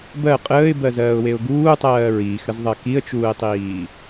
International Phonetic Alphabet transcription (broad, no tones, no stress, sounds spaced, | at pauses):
b ɜ qʼ əː ɪ̯ b ɜ z ɜː ʊ̯ w e ʊ̯ ɡ uː tˤ ɜː ɹ iː x ɾ ə z ðˤ ɜ k i ə̯ t͡ʃ uː ɪ̯ tˤ iː